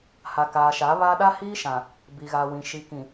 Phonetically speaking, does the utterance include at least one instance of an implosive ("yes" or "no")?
yes